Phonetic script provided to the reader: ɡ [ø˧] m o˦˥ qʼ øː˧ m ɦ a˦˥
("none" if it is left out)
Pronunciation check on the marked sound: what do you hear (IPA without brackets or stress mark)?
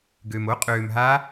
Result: ø˧